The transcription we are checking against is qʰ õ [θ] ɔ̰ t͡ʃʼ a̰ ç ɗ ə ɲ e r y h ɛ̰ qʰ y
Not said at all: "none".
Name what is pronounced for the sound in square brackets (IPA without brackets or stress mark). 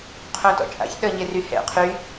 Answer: t